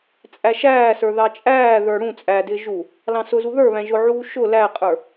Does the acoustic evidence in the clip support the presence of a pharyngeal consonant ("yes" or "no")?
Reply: yes